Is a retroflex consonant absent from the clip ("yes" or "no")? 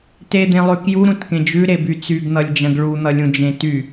no